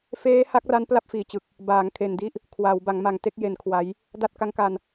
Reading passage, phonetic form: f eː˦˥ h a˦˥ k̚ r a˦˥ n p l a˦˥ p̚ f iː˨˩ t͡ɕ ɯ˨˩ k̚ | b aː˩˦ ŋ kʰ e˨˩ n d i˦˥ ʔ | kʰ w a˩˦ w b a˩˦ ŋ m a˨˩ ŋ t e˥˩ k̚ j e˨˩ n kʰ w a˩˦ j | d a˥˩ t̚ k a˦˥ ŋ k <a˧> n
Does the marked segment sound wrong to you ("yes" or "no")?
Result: no